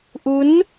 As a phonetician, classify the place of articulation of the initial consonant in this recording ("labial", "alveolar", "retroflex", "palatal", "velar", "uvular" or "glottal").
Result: glottal